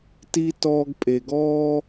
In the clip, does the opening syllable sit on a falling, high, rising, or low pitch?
high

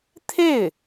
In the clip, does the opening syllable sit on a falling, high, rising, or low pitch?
falling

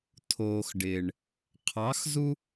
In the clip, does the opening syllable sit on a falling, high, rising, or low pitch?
low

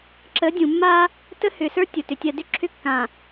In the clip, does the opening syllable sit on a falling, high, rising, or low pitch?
rising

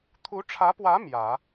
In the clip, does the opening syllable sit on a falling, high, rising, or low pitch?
rising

